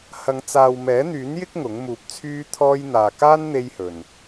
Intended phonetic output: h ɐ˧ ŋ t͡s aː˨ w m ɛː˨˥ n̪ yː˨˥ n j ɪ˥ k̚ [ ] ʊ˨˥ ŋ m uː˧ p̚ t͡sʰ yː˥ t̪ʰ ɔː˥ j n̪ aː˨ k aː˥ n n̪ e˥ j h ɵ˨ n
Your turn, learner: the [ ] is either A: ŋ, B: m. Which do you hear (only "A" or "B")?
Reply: A